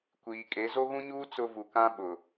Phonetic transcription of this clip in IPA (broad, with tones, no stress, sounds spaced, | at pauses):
kʷ iː˨ kʼ e˨˦ z o˦ ɣ ũ˦ ɲ uː˦ t͡s ʊ˦ v u˨ k ã˦ ɓ ʊ˨